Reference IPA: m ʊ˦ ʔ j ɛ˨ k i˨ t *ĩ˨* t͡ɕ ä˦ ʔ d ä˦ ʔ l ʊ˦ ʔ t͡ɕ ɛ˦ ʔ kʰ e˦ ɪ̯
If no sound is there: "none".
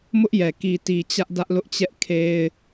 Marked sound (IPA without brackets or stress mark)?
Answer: i˨